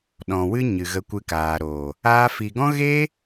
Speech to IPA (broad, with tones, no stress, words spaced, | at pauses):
ɗɔ̃˨wɨ˦ɲɨ˨ ɣə˧kʷɨ˧kaː˨ɾoː˨ | aː˧fi˨ɡɔ̃˦ ɣeː˦